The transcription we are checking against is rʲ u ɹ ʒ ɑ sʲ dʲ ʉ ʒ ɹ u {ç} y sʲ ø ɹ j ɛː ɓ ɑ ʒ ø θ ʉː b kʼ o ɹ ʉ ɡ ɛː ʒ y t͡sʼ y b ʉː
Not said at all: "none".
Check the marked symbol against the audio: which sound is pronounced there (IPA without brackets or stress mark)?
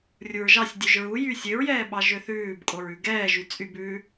j